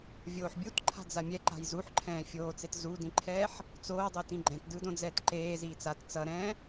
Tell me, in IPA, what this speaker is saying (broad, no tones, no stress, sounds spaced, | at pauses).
vʲ oː ħ bʲ u t ǃʰ a̤ d͡z a mʲ ɛ ǃ a̤ j z u ħ ǃʰ ɛ̃ː fʲ oː t͡s e t z u d ĩ ǃʰ ɛː ħ | t͡s oː dˤ e t ĩ ɡ͡ǃ ɛ̃ t d ɯ d õ d͡z ɛː t ǃ eː z iː t͡s a t t͡s ʌ ɾ ɛ̃ː